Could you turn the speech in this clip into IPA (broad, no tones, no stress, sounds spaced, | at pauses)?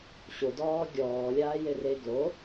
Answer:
ɕ ʊ d ɔː ɡʲ ɔː lʲ aː j e r e ɡ l o